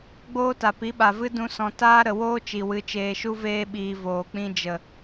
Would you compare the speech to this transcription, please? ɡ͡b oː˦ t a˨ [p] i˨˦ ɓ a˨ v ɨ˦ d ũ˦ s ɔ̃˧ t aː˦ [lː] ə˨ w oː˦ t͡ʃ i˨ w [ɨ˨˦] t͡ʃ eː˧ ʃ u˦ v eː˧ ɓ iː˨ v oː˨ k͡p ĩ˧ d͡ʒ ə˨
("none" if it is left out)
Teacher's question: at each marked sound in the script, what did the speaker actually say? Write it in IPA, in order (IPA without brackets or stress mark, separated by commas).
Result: p, ɾ, ɨ˨˦